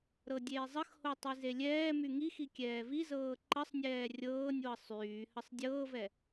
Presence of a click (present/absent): present